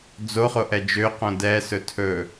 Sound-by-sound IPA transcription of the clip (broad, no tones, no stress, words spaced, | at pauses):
d͡zoχoʔɛ d͡ʒøqõ dɛsɵ tʰɵ